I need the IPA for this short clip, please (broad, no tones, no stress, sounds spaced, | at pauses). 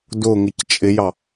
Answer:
d ʊ ŋ ɪ c t͡ʃʼ ɪ j ɑ